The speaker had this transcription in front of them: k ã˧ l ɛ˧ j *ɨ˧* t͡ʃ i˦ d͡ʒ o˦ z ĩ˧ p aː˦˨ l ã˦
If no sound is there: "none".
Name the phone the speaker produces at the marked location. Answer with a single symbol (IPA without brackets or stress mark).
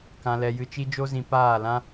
ɨ˧